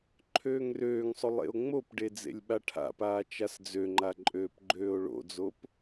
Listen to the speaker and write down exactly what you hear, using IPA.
ǃʰ øː ŋ r øː ŋ sˤ o lˠ ḛ o̯ ŋ͡m o p ɖ e d͡z ḛ lʲ ɓ a ʈʰ a̰ p aː t͡ʃ a s d͡z ø ŋ͡ǃ a ǃʼ øː p ɡ͡ǃ øː o̯ ɭ o̰ d͡z o p

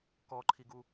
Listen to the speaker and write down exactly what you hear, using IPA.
k ɔ ǃʰ i ɡ u

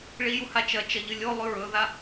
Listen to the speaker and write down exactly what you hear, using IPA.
ɭ i j u h a t͡ʃ ɐ t͡ʃ ɐ ʎ ɨ lʲ o lˠ ʉ ɹ ɵ ð a

